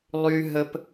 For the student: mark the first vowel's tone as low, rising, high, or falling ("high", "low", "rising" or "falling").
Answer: high